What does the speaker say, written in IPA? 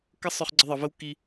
k ə˦ sˤ ʊ˧ χ ɡ͡ǀ ə˧ ðˤ ə˨ v ə˦ w k i˧

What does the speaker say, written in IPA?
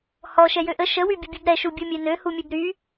h ɔ ʃ ɛ j ø ʔ ə ʃ ə w y bʲ ə bʲ u b ɾ ɛ ʃ u bʲ u mʲ e n ø h u mʲ ø b ɾ y

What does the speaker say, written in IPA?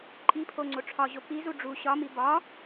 ǃʼ i pʰ o ŋ͡ǀ o ʈ͡ʂʰ ɒ ʑ o p i z u ɖ͡ʐ u ɕ ɒ m i b ɒ

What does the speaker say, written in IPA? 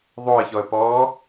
ðˤ o ə̯ ç ɔ ə̯ p ɔː

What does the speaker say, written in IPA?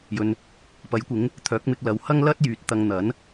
j ɵ˨ n | p ɐ˨˥ j kʷ ɪ˨˥ ŋ | t̪ʰ œː˨˥ k̚ m ɪ˧ k̚ l ɐ˨ w h ɐ˥ ŋ l ɐ˥ t̚ j yː˨˥ t̚ t̪ ɐ˧ ŋ n̪ ɐ˨˥ n

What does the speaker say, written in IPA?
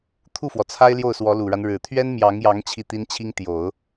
t̪ʰ u˥˩ f w ɔ˩ t͡sʰ a˥ ɪ̯ l j o˥˩ ʊ̯ s w ɔ˧˥ l u˨˩ ɻ a˦ n ɻ ɻ̩˨˩ t̪ʰ ɥ ɛ˥ n m j ɑ˧˥ ŋ j ɑ˧˥ ŋ t͡ɕʰ i˥˩ t̪ i˥ n t͡ɕʰ i˥ ŋ t̪ j o˨˩˦ ʊ̯

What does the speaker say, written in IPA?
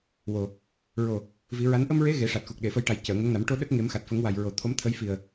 w o˨˩ | ɹ o˨˩ | v i˨˩˦ ɹ a˧˥ n ʔ ə˧ m ɹ e˧˥ ɣ e˨˩˦ ʂ a˨˩ t̚ x u˨˩ k̚ ɗ e˨˩˨ f ə˧ j ʈ a˨˩ j c əː˨˩˨ ŋ ə˧˥ ŋ n a˨˩˦ m ʈ o˧ ɗ ə˦˥ k̚ ŋ e˨˩˦ m x a˨˩ t̚ f ə˨˩˦ ŋ w a˨˩ j ɹ o˨˩ t̪ʰ o˧˥ m t̪ʰ ə˧˥ j f i˨˩ ə̯

